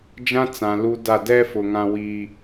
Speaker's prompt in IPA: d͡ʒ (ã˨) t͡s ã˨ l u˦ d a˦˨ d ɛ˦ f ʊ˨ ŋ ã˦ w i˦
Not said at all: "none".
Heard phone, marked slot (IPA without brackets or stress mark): ã˦